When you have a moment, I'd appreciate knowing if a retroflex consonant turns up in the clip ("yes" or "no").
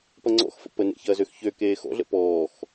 no